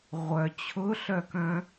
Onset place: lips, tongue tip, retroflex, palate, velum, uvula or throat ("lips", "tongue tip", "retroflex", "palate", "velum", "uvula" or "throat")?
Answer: uvula